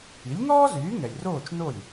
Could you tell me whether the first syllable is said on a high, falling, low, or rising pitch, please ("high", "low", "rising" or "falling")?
rising